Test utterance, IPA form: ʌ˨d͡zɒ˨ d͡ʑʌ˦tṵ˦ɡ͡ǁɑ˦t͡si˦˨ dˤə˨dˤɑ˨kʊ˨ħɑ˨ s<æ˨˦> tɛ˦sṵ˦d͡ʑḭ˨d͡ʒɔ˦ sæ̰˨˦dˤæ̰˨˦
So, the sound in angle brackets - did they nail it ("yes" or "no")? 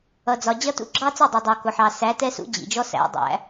yes